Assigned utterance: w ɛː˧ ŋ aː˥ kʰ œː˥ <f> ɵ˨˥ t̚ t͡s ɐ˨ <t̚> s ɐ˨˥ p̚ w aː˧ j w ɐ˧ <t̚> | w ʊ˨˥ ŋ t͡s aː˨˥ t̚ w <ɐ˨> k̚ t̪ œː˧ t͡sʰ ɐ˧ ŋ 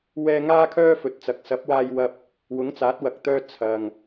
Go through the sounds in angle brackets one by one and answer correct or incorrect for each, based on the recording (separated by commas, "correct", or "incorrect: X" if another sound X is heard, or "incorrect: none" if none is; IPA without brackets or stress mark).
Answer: correct, incorrect: k̚, incorrect: p̚, correct